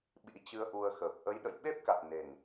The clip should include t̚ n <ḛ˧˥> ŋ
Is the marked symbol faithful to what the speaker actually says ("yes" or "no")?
no